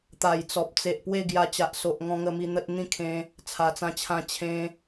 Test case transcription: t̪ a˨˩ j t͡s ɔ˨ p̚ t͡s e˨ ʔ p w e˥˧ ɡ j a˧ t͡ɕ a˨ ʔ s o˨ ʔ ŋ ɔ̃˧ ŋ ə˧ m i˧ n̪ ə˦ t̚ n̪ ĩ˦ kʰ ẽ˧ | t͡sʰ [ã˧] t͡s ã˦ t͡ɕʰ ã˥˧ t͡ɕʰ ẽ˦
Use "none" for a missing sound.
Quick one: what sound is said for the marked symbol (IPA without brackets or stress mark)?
a˧